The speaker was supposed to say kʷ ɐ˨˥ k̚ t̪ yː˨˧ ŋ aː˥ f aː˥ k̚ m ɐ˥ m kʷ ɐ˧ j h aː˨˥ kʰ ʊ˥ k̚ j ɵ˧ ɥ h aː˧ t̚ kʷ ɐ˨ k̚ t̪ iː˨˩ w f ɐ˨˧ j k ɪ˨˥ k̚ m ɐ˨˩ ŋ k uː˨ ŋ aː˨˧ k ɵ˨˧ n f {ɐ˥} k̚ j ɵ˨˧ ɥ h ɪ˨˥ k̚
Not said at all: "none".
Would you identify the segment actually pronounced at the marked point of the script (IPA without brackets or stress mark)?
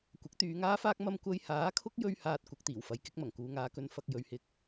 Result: ɐ˨